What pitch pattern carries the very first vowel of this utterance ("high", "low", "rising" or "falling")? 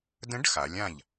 rising